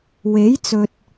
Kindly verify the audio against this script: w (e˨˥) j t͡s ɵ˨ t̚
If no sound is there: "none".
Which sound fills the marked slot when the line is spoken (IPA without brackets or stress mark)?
e˨˥